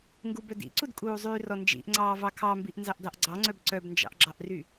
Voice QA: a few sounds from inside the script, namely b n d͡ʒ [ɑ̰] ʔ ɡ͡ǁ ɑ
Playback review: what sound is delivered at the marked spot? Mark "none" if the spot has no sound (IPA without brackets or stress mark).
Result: ɑ̰